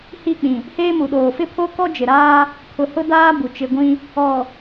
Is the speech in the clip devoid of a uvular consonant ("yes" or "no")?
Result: yes